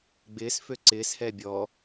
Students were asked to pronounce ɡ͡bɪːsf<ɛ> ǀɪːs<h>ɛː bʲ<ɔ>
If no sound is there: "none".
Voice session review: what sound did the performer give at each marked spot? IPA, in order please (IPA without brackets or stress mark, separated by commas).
ø, h, ɔ